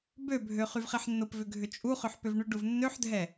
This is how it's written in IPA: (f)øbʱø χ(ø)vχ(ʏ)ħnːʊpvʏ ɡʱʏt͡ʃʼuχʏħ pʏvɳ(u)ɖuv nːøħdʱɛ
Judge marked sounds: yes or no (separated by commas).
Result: no, no, no, no